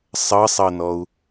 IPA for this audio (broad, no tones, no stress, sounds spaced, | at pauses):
sˤ ɤ sˤ ɤ n ɔ u̯